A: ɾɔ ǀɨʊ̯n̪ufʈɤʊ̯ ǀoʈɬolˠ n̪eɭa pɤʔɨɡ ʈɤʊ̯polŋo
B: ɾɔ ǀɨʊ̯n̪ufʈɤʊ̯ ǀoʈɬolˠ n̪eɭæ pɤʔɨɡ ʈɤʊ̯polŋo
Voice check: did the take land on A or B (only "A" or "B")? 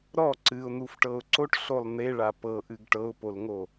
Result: A